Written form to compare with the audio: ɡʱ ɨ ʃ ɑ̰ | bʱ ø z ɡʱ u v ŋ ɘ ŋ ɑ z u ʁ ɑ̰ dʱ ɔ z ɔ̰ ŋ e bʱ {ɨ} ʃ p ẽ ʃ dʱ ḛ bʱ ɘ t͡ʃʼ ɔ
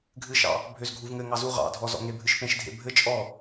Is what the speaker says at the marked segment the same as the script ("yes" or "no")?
yes